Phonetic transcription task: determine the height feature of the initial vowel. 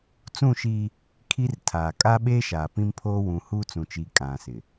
high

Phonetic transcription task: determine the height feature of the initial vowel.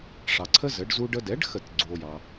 low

